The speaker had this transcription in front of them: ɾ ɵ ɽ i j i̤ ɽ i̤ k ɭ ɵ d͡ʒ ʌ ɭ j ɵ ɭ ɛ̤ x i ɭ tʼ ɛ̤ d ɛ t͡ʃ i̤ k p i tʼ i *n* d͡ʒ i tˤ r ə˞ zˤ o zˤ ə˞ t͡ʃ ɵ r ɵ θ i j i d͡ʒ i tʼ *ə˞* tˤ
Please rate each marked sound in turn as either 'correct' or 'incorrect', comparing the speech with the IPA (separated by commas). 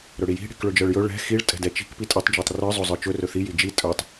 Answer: incorrect, correct